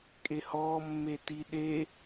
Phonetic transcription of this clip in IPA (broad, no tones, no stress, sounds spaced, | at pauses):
kʼ e h ɔː mː e t i ɗ e